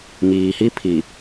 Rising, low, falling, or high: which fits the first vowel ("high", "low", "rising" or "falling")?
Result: low